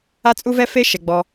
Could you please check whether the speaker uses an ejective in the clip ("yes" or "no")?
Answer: yes